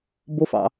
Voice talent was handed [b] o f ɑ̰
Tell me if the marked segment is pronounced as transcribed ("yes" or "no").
yes